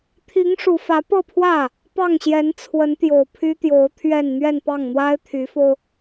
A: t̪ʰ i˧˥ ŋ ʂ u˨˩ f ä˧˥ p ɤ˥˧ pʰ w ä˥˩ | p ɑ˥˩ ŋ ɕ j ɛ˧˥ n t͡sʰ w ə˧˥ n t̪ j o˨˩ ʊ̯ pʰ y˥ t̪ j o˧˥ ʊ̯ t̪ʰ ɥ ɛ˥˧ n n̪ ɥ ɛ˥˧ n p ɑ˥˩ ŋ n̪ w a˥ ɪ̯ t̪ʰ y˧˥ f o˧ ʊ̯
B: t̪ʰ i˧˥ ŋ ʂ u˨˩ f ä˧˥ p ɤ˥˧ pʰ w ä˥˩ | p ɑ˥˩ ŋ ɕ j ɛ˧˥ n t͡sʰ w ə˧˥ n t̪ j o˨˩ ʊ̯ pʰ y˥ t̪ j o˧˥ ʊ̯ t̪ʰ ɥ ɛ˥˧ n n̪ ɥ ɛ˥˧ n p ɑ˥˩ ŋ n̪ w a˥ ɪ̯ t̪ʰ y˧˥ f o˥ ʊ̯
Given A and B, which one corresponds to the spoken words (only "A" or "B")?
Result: A